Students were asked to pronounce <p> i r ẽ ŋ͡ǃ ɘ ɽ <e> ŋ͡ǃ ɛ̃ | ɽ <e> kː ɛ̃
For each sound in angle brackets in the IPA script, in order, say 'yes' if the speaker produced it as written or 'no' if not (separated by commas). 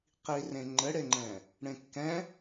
no, yes, no